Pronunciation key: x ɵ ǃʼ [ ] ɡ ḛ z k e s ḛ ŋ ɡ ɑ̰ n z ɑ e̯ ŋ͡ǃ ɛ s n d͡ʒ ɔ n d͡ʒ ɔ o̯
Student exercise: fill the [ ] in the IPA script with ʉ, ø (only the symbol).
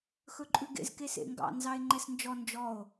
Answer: ʉ